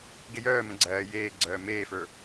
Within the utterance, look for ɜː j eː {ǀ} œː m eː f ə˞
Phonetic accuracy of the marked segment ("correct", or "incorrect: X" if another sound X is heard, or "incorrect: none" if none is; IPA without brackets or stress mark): incorrect: ɡ͡ǀ